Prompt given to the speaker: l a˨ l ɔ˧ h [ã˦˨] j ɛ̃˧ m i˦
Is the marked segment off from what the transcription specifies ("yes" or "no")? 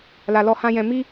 yes